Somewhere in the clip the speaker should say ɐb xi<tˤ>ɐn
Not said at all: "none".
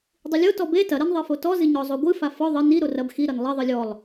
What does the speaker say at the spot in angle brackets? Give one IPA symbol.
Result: ɾ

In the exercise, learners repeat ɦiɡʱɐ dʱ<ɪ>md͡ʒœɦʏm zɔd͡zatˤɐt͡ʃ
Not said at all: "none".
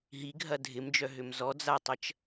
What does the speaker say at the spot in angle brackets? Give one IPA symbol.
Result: ɪ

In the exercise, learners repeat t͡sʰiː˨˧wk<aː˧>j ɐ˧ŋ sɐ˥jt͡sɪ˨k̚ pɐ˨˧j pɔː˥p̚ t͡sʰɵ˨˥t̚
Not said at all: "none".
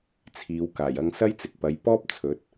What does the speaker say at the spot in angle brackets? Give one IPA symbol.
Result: aː˨˩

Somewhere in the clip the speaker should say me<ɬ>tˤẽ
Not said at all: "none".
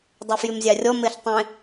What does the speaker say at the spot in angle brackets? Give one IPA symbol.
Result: ɬ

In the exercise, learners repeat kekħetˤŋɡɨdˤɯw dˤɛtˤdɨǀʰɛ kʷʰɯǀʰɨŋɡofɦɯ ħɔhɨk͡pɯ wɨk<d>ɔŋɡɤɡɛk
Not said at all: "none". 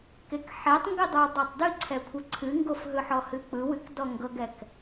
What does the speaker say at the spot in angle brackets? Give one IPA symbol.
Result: d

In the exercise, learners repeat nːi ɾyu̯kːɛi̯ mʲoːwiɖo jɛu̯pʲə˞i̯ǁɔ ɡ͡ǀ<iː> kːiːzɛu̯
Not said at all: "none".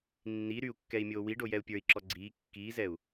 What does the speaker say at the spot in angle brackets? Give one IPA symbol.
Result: iː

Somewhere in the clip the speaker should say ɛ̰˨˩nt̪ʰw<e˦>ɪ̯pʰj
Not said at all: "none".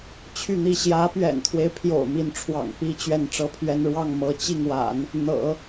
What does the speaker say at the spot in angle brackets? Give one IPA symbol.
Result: e˦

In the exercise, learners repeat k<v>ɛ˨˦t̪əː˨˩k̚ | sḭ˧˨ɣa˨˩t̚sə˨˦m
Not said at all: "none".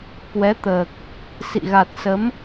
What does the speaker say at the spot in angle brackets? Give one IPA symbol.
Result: w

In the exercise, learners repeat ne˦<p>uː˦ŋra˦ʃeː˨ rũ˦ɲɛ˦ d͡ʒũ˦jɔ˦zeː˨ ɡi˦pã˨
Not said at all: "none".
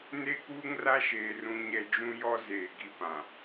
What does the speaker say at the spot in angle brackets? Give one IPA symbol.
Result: k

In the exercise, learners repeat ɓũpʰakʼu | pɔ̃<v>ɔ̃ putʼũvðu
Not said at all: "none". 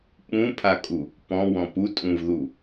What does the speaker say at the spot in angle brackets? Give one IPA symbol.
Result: w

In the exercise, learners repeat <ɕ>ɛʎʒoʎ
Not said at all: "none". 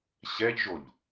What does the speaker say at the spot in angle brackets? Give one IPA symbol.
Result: ɕ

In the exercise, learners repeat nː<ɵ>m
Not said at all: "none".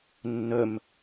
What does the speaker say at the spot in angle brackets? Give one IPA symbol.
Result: ɵ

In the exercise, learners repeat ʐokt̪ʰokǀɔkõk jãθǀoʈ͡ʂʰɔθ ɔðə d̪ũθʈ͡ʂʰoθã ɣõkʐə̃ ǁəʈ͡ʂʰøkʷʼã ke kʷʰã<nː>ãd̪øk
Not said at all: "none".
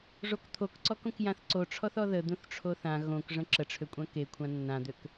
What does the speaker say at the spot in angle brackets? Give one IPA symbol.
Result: nː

